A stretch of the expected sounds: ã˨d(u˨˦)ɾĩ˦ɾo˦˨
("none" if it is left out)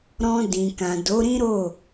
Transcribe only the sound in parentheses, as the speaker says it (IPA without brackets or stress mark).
o˨˦